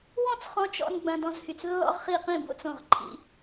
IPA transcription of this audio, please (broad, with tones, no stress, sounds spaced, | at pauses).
w ɔ̃˥˨ t͡s χ ɔ̃˧ t͡ʃ ɔ̰˧ n ɡ͡b ɐ̃˧ d ɔ̃˧ z h y˧˩ t͡s lː ɔ̰˧ ʁ χ i˧˩ q ĩ˧˩ b o̰˥˨ t͡s õ˧˩ ʁ ǃʰ ḭ˧